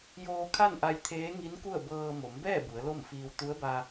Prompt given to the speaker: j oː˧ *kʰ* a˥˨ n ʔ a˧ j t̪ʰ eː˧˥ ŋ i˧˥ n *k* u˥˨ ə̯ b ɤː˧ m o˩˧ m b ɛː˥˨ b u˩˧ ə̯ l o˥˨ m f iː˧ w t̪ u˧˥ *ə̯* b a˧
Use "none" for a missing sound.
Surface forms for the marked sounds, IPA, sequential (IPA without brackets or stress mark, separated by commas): kʰ, k, ə̯